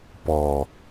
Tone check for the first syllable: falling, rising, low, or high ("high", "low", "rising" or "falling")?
low